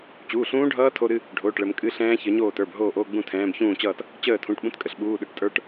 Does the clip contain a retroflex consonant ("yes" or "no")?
yes